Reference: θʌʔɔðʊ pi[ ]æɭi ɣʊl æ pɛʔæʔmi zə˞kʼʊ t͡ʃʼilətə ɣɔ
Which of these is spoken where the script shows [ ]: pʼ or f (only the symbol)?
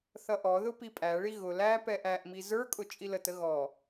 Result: pʼ